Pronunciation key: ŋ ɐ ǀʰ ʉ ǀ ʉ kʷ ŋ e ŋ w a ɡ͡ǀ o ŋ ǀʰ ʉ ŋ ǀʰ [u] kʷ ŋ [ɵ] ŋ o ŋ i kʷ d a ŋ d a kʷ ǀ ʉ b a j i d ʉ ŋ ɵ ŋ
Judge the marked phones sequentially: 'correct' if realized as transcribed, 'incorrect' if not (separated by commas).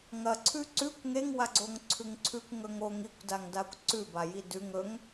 incorrect, correct